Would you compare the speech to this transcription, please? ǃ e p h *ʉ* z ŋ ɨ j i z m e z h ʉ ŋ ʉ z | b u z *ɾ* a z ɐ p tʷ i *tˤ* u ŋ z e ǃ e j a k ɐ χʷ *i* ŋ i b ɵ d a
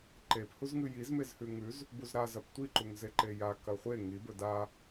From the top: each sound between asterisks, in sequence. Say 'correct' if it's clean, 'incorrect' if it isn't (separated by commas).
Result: incorrect, correct, incorrect, incorrect